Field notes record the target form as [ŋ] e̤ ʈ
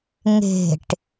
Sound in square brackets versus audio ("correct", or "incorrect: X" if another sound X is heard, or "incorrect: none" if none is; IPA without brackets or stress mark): correct